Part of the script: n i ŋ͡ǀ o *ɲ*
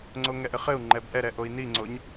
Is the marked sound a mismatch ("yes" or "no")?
no